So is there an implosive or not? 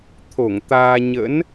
no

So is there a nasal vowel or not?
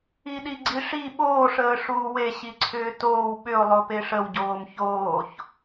no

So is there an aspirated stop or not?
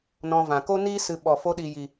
no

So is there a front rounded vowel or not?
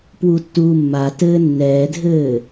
no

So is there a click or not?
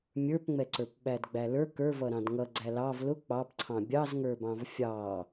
yes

